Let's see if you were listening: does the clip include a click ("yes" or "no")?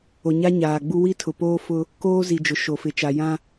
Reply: no